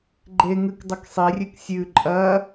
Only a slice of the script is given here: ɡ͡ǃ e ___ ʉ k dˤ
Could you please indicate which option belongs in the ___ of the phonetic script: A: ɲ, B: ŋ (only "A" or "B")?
B